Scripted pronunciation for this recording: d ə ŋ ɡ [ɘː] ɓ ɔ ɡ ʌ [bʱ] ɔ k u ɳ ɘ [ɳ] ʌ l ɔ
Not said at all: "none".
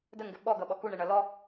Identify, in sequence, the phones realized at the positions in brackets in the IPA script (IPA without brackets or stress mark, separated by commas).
ɘ, ɓ, ɳ